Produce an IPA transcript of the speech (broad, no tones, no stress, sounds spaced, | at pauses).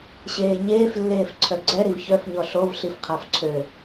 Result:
ɕ eː ɲ eː f lː eː f ǀʰ œ ɡ͡ǀ ɛ ɾ i v ç œ f ɲ ɔ ɬ o v ɬ i f qʰ a f ǀʰ ø